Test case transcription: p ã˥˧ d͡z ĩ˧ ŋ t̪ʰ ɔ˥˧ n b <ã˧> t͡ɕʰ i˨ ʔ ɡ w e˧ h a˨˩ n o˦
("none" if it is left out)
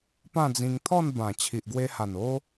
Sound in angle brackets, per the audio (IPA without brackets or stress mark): ã˨˩